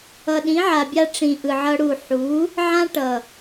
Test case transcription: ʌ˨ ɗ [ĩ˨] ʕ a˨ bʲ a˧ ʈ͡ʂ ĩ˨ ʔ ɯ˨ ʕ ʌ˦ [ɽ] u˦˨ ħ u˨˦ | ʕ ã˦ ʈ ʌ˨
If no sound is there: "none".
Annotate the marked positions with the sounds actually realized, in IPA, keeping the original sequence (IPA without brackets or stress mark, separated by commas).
ĩ˨˦, ɽ